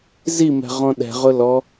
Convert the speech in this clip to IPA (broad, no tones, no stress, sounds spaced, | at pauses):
z i m ɛ̤ ʁ ɔ̃ ɗ ɛ̤ ʁ ʊ l ɔ